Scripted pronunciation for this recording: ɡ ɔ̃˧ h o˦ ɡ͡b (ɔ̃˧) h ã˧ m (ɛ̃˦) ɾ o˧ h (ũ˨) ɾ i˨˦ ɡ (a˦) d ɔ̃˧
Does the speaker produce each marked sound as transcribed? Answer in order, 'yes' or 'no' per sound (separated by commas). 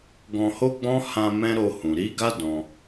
no, yes, yes, yes